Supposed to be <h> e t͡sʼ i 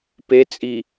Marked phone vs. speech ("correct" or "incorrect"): incorrect